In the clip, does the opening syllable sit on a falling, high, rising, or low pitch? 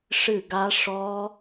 falling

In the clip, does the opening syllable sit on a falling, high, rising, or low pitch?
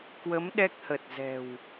rising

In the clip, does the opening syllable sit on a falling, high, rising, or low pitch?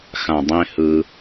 low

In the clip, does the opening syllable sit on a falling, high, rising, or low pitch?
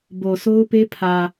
low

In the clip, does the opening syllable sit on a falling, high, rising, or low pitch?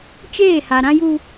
falling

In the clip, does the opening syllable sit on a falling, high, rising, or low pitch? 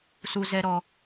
low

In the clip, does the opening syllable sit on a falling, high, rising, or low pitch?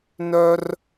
high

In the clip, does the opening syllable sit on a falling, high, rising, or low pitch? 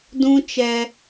high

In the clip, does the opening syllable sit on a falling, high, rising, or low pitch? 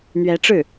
rising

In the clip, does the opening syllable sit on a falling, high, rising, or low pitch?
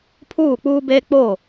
falling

